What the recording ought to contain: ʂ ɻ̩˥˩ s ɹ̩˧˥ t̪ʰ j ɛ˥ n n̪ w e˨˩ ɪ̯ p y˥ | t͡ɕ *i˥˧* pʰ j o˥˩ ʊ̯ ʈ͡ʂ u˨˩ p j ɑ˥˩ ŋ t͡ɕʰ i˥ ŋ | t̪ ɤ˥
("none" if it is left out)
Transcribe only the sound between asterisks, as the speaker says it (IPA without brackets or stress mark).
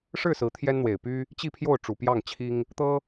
i˥˧